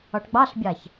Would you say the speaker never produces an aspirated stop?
yes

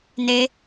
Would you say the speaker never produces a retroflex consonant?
yes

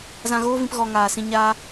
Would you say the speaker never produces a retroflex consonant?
yes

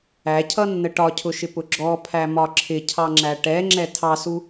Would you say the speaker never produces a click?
no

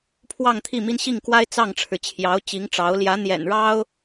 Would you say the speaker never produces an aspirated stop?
no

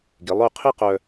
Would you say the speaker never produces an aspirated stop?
no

